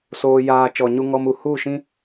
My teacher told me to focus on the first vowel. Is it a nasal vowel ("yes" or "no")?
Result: no